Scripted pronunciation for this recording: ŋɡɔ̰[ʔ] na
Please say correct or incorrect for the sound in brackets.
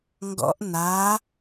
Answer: correct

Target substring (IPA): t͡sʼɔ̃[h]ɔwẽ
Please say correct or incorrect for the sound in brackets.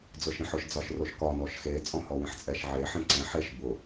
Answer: correct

